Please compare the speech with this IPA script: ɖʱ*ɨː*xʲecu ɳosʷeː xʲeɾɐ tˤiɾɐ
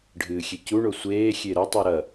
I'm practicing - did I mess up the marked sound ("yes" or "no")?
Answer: no